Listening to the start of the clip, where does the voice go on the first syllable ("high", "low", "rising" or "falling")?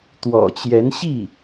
low